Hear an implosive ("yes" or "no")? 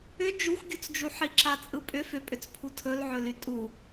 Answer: no